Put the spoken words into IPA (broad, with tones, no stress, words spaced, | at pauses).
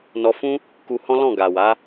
nɔ˧fũ˦ | ku˧hɔ̃˦ lɔ̃˦˨ɡa˨wa˨˦